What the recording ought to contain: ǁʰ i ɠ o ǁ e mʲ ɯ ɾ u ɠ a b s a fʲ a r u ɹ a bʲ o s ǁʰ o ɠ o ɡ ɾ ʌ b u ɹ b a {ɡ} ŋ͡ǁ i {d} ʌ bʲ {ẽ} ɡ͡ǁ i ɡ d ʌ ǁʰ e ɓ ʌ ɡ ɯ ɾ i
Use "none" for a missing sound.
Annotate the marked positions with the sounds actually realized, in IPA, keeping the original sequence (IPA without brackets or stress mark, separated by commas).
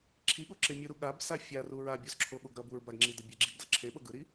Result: ɡ, d, e